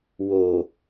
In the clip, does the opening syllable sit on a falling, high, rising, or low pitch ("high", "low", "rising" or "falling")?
low